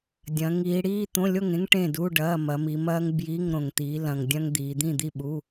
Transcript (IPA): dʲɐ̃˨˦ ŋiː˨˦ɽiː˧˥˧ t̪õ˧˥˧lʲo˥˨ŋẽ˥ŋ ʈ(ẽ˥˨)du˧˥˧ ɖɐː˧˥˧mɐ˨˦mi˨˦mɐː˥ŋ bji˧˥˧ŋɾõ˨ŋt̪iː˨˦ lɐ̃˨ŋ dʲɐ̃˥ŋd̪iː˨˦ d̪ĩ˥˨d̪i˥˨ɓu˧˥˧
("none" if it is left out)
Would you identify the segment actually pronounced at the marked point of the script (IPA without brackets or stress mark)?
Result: ẽ˥˨